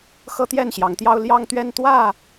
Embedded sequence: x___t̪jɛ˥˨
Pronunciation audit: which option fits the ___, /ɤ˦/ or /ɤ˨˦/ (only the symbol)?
ɤ˦